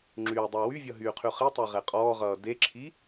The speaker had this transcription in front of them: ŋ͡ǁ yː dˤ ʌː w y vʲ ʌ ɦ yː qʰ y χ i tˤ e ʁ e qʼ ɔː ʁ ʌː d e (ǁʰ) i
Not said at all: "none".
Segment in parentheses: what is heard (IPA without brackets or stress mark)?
ǁʰ